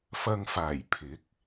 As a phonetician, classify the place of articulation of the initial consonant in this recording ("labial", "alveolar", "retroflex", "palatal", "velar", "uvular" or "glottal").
labial